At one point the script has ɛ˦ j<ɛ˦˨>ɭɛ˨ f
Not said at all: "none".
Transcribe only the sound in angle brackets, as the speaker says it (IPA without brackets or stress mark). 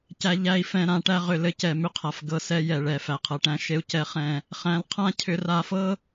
ɛ˨